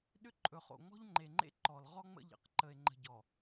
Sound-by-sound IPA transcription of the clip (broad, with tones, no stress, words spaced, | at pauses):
ɗʏ˦ǃʼɵ˨χo̰˨ ŋ͡mɔ̤˦ʎŋ͡ǃe˨ŋ͡ǃḛ˦ ǃɔ˨l ʁɔ˦ ŋ͡mə̰˦ʎə̰˨q ǃə˨e̯ŋ͡ǃə̤˨ɟɔ˨